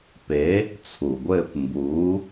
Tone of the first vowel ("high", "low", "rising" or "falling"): rising